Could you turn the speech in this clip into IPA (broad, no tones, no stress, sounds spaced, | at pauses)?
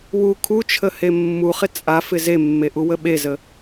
w u kʰ u t͡ʃʰ ə h e mː u χ ɪ t͡sʼ a f ɪ z e mː e ʔ u w ə ɓ e z ə